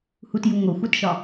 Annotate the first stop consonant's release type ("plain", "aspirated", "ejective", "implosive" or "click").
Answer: plain